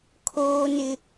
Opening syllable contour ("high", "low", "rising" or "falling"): high